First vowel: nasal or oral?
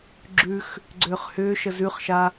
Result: oral